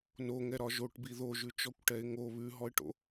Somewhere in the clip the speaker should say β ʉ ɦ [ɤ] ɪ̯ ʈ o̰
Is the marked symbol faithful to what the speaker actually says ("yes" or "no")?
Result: no